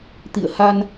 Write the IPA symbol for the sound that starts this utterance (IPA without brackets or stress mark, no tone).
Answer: t̪